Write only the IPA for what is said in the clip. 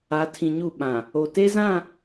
a˨˦tʰĩ˨ɲu˦˨ ɓã˨ | o˨ te˦zã˦˨

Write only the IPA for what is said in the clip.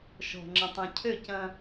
ʃɔ̤˨ ŋ͡ǁɐ̃˨tˤɐ̃˨cʰø˦˨cɐ̃˦

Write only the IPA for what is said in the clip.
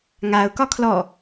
ŋaʊ̯kɒ kʰlɔ

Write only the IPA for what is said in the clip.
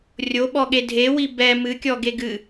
rʲoɓɔɠe dʱewi bɛ mɨkʲɔ ɡeɡɨ

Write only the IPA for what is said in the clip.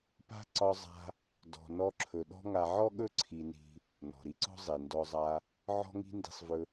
pa̤˦ ǀɒ˧zˤa̤˧ | dɔ̤˨nɔ˧ǁʰɵ˨ ɗɔ̤˦ŋa˧ ʕɔ˦ɠɵ˦ ǀʰi˧ni̤˧ | nɔ̤˨ɾi˦ǀɔ̤˦ zˤi˨ ndɔ˧zˤa˧ | ʕɔ̤˦ŋi̤˦ndi̤˧sˤvɵ˧

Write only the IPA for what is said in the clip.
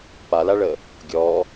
palaɭə | ɡʲɔ

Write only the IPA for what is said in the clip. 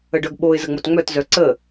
əɖœɡɓoɪ̯ zəŋ͡motŋ͡mœt zœǀə

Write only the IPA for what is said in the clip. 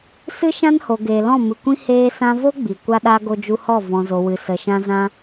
sɨ˦ʃã˦nho˨ɡeː˨ lɔ̃˦˨mɨ˨kʷĩ˦ heː˧sã˧vo˦ ɡ͡bi˨kʷa˦ɗa˦ ɡo˧d͡ʒu˧hɔ˦˨ vɔ̃˨zo˨ wɨ˨ sə˨ʃã˧ zã˧

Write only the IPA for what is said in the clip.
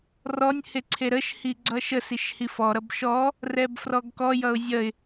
rɔnʲhe ǀʰeɾəʃhi ɡ͡ǀʌʃəsiʃ hifɔɾʌb ʃɔ | rɛbfrɔɡkɔjʌʊ̯ zʲʌɪ̯

